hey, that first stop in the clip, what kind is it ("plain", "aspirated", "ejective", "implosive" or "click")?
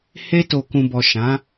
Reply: plain